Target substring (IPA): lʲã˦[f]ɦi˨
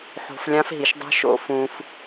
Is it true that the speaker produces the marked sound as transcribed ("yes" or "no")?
yes